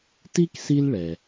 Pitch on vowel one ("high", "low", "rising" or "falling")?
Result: high